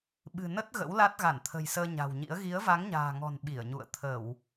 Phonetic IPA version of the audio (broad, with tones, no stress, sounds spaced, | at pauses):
ɓ ɨ̤˨˩ n ə˦˥ t̚ ɣ ə̰˧˥ w l a˦˥ t̚ ɣ a˧˩ n t̪ʰ ə̤˨˩ j s əː˧ ɲ a̤˨˩ w ɲ ḭ˧˥ ə̯ ɣ i˨˦ ə̯ v a˨˦ ŋ ɲ a̤ː˨˩ ŋ ɔ̤˨˩ n ɓ i˧˩ ə̯ ɲ ṵ˧˨ ə̯ t̪ʰ ə˧˩˨ w